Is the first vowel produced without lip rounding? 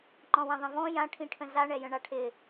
no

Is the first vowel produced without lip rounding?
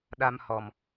yes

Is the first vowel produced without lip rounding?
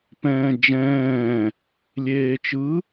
yes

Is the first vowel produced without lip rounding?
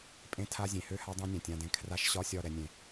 yes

